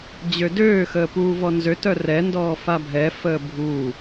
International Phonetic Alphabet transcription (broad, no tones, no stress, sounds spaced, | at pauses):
d͡ʑ ø d øː x əː p uː v ɔ n z ø t œ r ɛ n d ɔː f a bʱ ɛ f əː bʱ uː